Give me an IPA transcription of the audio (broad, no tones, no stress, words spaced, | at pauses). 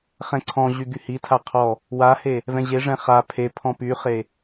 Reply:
χɛ̃ǀʰɔ̃ʑy ɡyhitʰa qʰɔ | wahe | vɛ̃ʑeʐɛ̃ χa pʰe pʰɔ̃pyχe